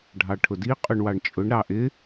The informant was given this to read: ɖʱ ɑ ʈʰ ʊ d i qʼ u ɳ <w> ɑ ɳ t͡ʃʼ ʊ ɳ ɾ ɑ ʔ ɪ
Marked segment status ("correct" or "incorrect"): correct